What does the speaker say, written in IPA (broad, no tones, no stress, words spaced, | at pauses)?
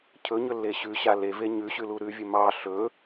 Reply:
cʰɵɲɵlːe ɕʉɕa leve ɲʉɕʉlu ɾʉvʲɵ mɑ ɬɵ